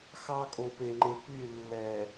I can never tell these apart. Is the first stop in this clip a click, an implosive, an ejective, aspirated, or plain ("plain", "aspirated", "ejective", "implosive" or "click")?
ejective